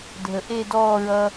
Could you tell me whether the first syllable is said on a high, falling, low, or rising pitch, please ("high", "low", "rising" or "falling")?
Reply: low